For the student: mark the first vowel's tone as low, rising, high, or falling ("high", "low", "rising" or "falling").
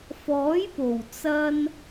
rising